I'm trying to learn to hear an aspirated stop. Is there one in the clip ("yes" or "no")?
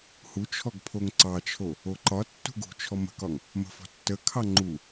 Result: yes